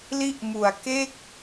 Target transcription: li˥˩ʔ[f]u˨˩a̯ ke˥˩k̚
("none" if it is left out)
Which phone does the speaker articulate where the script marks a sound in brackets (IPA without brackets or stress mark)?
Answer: m